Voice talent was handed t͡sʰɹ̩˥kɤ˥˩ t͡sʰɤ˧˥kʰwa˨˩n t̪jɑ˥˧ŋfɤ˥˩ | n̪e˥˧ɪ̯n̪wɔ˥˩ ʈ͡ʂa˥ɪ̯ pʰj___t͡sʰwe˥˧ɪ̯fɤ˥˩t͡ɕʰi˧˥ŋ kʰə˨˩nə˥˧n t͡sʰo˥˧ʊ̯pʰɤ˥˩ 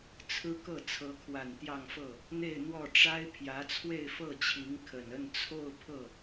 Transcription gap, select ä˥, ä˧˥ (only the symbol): ä˧˥